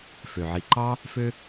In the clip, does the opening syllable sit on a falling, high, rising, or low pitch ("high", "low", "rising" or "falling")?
low